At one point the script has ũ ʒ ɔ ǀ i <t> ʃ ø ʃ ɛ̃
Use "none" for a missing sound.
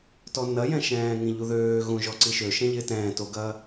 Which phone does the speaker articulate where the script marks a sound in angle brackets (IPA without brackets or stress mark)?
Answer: none